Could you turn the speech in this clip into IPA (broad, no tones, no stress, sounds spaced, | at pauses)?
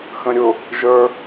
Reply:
x ə̃ ɾʲ ʊ | ʒ ə˞